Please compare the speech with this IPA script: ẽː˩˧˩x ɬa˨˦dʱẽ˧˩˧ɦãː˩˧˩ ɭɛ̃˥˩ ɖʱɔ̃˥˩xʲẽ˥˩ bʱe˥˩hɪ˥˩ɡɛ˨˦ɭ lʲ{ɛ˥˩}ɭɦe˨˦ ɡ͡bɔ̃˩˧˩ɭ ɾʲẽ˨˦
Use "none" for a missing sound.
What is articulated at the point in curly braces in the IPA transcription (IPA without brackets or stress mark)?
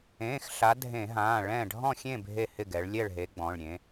ɛ˥˩